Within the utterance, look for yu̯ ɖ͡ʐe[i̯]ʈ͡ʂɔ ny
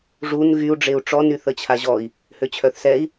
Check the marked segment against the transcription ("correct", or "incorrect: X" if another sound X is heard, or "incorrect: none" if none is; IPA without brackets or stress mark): incorrect: u̯